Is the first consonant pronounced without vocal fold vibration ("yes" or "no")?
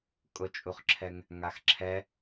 yes